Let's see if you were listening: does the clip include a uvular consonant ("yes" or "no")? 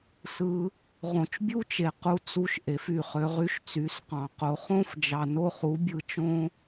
yes